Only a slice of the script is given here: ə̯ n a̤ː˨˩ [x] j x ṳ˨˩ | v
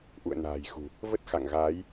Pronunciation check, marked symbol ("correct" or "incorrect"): incorrect